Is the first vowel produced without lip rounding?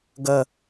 yes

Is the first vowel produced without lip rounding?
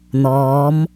no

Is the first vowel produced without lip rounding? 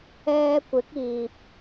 yes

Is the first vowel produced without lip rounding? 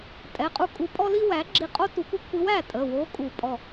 yes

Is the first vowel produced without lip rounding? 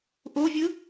no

